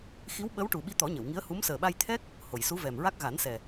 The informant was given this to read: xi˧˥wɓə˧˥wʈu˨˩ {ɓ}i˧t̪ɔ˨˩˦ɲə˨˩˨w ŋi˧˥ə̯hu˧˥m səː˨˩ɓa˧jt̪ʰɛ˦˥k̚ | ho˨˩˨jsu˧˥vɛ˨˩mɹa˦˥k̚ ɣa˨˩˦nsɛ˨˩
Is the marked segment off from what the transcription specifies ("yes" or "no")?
no